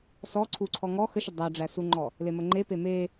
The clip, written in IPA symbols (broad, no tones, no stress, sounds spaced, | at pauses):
s ɔ ǀʰ u ǀʰ ɔ ŋ ɔ x ə ʃ ə dˤ æ ɖ͡ʐ æ s u ŋ͡ǃ ɔ | l e m ə ŋ͡ǃ e p e m e